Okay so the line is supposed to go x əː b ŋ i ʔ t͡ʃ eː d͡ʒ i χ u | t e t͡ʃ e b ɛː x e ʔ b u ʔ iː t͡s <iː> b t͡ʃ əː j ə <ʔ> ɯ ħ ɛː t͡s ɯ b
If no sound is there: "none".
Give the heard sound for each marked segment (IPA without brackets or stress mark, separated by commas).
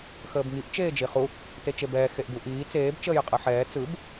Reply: eː, qʼ